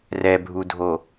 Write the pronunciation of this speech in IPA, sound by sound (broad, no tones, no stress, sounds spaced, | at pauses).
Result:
r ɛ bʱ u dʱ o